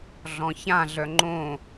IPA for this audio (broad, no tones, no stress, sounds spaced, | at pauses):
ɮ ɔ̃ ç ã ɮ œ ŋ͡ǃ õ